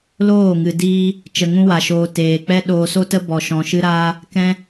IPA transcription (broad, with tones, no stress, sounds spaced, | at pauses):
l oː˦˨ ŋ ɨ˨ d iː˦ | t͡ʃ ə˧ ŋ ũ˦ w a˧ ʃ oː˧ t eː˧ k͡p ɛ˦ ɗ oː˧ s o˦ t ə˦ b ɔ˧ ʃ ɔ̃˧ ʃ ɨ˦ ɾ aː˦ | k ɛ̃˦